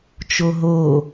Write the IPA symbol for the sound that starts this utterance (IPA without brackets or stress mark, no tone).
t͡ʃ